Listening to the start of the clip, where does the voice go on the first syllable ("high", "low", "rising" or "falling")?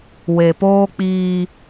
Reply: low